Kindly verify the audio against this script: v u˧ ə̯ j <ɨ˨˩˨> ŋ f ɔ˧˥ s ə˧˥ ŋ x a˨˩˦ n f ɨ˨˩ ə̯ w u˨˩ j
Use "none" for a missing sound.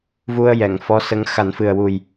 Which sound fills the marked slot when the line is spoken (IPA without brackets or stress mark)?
ɛ˨˩˨